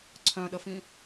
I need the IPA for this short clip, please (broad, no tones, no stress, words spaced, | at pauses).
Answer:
ǀʰœ̃ɗəfĩ